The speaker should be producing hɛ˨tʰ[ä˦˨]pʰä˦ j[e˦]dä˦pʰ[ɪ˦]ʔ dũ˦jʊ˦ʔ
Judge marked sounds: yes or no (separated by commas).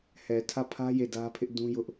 yes, no, yes